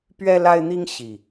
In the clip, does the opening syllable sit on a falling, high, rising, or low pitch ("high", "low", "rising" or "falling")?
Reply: high